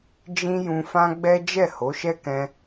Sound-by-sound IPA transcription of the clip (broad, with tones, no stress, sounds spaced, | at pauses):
d͡ʒ ĩ˦ j ũ˧ f ã˦ ɡ͡b ɛ˦ d͡ʒ ɛ˦˨ h o˨˦ ʃ ɛ˦ k ɛ̃˧